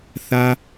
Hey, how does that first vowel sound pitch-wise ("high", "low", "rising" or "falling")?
high